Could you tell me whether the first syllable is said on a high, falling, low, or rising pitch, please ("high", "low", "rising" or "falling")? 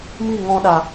falling